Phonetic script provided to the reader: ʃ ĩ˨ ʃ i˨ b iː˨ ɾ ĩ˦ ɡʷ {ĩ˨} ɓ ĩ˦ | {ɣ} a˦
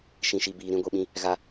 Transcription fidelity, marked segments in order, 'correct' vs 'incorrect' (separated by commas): incorrect, correct